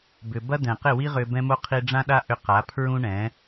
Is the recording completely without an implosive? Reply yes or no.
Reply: no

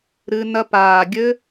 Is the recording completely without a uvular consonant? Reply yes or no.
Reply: yes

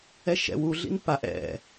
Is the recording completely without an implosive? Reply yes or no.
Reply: yes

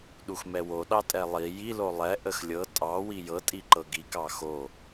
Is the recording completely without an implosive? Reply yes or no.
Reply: no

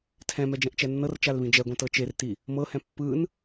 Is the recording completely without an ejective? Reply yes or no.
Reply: yes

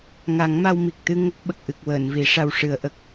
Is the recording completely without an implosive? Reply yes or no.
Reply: no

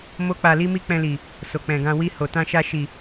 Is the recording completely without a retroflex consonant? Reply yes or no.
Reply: yes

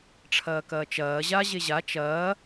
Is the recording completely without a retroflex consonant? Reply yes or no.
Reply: no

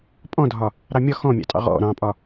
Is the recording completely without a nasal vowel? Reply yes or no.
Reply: no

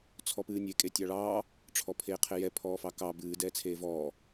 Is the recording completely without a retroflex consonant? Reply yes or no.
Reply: no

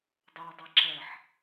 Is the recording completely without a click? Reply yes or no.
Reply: no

